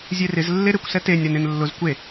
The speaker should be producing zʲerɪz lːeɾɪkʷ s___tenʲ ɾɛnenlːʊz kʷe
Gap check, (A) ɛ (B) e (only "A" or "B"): A